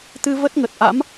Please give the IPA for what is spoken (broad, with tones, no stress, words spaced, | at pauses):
t̪ɨ˧ və˦˥t̚ŋə˨˩t̚ʔa̰˧˥m